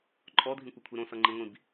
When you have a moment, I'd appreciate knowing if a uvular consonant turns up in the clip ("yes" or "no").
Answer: no